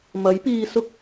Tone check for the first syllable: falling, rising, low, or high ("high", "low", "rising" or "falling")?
rising